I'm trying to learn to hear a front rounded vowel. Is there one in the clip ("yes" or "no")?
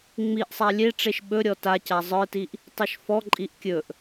no